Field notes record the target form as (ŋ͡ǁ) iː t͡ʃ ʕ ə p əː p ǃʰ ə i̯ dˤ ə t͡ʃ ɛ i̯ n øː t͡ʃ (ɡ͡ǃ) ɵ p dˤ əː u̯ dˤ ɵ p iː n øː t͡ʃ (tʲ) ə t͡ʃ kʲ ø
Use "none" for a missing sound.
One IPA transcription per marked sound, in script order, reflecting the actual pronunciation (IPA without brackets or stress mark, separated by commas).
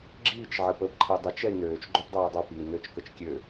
ɡ͡ǁ, ɡ͡ǃ, k